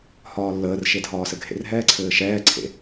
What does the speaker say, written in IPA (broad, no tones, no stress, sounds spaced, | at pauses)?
h ɒː lː əː r ʃ e dʱ ɒː s ɘ ɡʱ ḛ r ɦ ɛː ǀʰ ɘː ʃ ɛː ǀʰ ḛ